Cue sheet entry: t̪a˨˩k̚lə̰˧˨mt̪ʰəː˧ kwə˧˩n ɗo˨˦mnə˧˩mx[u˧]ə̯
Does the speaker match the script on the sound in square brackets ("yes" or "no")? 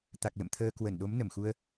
yes